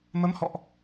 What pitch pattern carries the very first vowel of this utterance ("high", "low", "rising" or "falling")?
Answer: rising